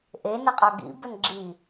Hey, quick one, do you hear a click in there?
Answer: yes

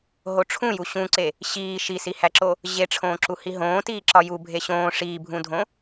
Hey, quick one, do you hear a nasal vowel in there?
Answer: yes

